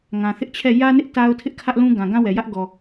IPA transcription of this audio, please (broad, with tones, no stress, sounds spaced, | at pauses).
ŋ ã˨ θ ɪ˦ ʔ t͡ɕʰ ɛ˦˨ j ä˦ n ɪ˦ ʔ t a˦ ʊ̯ tʰ ɪ˦ ʔ kʰ ä˦ ʔ l ũ˦ ɡ ã˨ ɡ ã˦ w ɛ˨ j ä˦ ʔ ɡ ɔ˨